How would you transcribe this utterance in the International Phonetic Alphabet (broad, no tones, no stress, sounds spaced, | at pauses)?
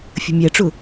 fʲ ə̤ mʲ æ ʈ͡ʂ ʊ